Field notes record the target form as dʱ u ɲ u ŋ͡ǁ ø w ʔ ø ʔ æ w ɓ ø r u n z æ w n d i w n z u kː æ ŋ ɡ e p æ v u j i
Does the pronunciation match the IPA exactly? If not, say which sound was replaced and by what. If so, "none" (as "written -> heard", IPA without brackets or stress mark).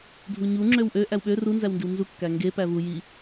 none